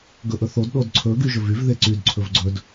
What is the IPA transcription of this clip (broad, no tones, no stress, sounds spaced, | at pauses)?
ɡ ɵ ʔ ɵ θ o d ɗ o d ǀʰ ɵ ɡ y ʒ ɵ v y v ð e ǀ y d ǀʰ ɵ v ɡ͡ǀ ɵ d